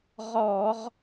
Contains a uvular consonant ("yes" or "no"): yes